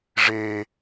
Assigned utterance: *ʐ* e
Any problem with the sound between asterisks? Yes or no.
no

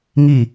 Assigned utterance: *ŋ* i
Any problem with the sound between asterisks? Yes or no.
no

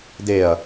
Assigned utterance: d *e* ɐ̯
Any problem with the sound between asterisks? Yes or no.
no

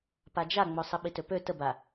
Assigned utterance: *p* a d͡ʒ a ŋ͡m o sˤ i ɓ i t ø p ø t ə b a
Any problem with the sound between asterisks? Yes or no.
no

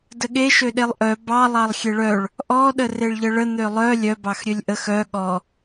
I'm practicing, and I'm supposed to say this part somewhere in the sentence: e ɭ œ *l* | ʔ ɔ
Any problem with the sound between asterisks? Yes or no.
yes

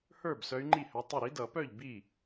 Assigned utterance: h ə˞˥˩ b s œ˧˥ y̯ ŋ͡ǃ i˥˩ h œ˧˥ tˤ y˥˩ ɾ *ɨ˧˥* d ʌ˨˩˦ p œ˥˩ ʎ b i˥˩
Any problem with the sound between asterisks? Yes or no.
yes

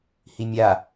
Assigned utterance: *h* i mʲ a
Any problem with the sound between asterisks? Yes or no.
no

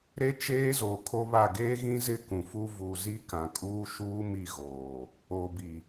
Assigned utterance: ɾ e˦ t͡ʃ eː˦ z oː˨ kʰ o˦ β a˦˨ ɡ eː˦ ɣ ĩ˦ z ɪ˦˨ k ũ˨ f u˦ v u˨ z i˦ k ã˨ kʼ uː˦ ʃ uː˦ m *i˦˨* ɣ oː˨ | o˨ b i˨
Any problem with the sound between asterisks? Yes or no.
no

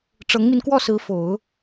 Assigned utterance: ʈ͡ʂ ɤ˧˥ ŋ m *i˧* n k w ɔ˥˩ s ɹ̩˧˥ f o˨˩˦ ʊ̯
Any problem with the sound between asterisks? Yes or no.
no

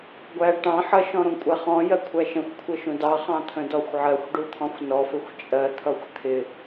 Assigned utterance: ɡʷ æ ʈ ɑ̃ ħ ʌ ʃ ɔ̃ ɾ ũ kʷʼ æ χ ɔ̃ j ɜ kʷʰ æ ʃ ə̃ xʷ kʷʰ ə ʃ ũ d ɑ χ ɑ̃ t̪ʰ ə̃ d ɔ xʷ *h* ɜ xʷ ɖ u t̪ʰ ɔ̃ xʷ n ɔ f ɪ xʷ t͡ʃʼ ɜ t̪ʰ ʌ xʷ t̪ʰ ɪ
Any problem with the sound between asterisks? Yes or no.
yes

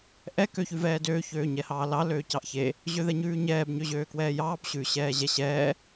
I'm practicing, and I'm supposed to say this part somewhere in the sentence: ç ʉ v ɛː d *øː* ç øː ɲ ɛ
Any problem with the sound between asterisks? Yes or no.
no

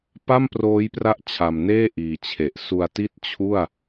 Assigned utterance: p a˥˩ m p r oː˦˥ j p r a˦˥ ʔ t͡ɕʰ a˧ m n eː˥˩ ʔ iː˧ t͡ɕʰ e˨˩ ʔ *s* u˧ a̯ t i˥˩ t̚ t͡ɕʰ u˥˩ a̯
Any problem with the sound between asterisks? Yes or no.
no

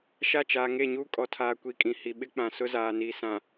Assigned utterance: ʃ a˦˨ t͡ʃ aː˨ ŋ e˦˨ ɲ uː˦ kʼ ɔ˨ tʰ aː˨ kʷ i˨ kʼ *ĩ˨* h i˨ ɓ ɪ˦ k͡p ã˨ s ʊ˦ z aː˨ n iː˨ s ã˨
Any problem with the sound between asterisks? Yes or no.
no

